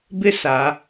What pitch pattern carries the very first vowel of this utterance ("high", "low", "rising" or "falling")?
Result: high